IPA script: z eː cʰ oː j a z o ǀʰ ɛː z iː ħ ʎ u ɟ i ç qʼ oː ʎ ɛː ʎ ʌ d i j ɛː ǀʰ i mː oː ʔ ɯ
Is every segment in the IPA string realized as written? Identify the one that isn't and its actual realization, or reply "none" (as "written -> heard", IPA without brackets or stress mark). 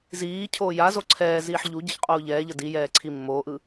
eː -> iː